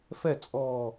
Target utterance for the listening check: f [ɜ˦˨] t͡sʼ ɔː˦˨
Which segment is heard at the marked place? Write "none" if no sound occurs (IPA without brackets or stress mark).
ɛ˦˨